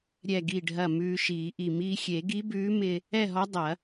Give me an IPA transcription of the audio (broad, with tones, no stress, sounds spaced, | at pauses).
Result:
ɾʲ ɛ˧˩ ɡ i˧˩ ɖʱ ɐ˧˩ m ʉː˧ ʃ iː˨˩˦ ʔ i˧˩ m iː˧ xʲ e˨˩˦ ɡ i˧˥ b ʉː˧˥ m ɪ˧ | ɛ˥˨ ɦ ɔ˧˥ dˤ ɐ˨˩˦